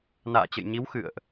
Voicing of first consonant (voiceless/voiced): voiced